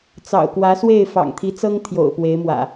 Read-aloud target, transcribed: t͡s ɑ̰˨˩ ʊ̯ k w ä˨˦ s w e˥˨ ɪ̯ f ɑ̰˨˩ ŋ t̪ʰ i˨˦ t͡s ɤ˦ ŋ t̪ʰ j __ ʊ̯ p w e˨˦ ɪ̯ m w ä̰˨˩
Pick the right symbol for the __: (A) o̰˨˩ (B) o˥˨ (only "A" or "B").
A